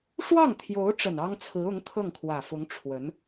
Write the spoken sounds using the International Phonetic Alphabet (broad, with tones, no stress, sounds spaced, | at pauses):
ʂ w ɑ˥˩ ŋ t̪ʰ j o˧˥ ʊ̯ ʈ͡ʂ ə˨˩ n ɑ˥ ŋ t͡sʰ ɹ̩˧˥ ʊ˧˥ ŋ t̪ʰ ɤ˥˩ ŋ kʰ w ä˨˩ f ʊ˧˥ ŋ ʈ͡ʂʰ w ə˧˥ n